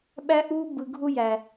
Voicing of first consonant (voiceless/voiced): voiced